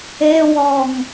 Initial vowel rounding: unrounded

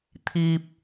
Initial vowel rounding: unrounded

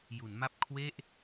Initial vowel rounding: rounded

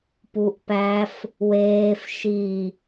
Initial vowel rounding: rounded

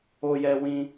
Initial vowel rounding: rounded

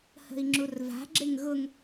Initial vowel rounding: unrounded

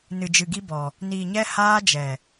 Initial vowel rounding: unrounded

